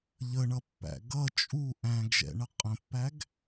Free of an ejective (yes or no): no